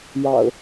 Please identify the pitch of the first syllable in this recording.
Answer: low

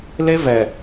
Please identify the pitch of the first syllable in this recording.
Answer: high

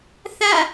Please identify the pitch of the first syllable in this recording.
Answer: falling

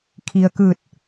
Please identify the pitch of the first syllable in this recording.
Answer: low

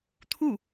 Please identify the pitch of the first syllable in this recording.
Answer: falling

